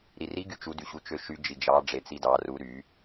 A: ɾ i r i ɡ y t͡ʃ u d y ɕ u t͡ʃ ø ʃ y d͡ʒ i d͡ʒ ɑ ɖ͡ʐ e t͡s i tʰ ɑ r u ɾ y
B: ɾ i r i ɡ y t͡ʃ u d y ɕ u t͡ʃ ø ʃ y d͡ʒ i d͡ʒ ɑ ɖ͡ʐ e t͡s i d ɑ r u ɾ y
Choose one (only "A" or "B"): B